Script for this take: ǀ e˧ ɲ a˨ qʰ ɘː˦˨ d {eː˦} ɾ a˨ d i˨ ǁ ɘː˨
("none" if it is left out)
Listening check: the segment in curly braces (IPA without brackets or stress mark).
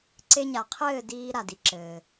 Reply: iː˦